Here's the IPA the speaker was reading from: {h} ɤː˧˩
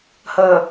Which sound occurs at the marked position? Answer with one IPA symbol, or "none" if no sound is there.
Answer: h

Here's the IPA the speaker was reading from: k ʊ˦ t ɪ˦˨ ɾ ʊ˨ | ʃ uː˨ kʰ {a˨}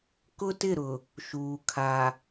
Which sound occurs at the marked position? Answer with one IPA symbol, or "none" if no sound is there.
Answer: a˨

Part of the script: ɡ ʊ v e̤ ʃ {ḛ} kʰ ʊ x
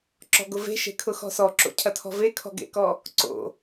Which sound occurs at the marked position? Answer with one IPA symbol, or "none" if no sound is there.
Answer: e̤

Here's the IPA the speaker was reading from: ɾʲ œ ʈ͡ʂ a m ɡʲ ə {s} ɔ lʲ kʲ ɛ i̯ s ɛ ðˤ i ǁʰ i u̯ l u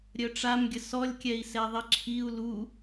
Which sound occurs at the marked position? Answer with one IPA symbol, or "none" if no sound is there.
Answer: s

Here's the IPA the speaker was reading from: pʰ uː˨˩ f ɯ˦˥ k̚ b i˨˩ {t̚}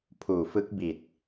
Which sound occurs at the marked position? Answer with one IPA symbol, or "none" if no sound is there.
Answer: t̚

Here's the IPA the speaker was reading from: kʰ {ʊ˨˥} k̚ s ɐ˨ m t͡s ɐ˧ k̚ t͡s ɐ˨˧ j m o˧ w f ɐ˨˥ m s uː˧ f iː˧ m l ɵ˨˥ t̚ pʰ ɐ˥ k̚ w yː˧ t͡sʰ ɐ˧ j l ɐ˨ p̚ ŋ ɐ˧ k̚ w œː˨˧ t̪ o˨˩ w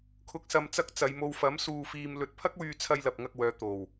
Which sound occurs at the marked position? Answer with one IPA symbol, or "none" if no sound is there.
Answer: ʊ˨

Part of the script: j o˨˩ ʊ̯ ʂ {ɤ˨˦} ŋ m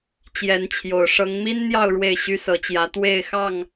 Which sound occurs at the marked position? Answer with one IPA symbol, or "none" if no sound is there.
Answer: ɤ˨˦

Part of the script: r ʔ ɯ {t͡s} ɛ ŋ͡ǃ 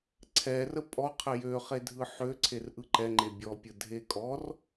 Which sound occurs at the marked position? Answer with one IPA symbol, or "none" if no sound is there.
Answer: ǃ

